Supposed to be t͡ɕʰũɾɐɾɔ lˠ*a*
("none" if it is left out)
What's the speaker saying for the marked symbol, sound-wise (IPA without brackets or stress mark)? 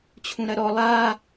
a